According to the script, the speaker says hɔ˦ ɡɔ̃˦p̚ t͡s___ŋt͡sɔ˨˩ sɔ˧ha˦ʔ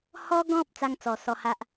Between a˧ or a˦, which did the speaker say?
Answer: a˦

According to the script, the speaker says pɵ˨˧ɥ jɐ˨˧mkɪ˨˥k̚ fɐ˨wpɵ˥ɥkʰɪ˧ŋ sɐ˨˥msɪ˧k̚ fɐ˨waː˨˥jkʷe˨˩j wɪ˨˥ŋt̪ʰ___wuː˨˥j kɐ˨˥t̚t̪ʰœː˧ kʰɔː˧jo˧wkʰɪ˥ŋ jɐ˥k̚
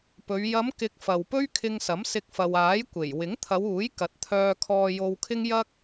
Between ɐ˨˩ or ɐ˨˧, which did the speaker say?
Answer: ɐ˨˧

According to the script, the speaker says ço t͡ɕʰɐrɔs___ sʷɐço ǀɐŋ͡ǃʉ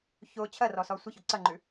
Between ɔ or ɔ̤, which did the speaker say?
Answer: ɔ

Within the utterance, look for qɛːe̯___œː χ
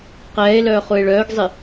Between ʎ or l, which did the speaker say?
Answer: l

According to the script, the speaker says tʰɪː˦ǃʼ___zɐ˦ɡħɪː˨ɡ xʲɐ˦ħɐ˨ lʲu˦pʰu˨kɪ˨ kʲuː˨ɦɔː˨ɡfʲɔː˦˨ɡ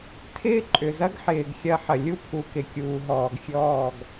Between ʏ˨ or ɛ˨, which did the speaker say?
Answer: ʏ˨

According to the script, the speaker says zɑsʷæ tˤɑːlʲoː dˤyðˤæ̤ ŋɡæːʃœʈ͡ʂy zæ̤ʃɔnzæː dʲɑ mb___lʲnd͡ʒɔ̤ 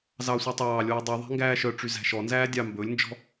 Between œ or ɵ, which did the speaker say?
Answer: ɵ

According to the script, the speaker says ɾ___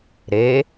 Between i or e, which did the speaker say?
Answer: e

